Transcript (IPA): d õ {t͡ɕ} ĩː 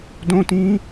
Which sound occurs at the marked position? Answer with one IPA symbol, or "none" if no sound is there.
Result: t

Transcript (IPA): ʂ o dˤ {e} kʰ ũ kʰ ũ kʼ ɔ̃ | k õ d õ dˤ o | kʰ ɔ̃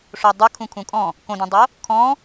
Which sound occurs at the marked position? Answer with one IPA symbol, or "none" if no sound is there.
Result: ɨ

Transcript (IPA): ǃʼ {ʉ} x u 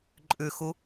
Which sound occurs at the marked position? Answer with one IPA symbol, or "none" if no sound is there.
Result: ʉ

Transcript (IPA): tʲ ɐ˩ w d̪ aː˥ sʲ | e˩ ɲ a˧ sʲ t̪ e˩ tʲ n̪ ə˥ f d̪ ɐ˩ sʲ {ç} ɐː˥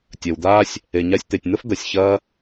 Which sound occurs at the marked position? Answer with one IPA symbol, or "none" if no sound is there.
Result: ç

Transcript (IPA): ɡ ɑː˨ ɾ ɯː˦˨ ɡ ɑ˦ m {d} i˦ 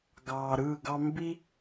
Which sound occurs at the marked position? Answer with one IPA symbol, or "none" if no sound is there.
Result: b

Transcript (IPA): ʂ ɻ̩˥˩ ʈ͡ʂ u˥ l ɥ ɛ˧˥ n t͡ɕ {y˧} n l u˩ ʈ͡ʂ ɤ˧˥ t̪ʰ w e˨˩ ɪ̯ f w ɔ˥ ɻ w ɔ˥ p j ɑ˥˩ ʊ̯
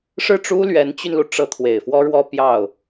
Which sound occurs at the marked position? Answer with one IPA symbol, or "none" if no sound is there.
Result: y˧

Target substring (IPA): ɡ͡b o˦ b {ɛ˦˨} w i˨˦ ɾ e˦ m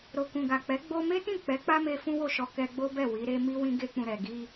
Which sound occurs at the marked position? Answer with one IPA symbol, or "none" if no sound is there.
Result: ɛ˦˨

